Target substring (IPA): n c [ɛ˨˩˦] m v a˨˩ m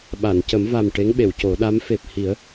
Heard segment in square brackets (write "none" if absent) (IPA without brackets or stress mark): ə˨˩˦